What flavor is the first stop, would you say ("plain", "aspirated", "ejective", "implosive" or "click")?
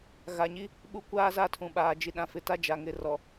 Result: implosive